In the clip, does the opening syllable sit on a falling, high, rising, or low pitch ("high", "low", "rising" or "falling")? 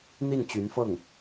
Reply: falling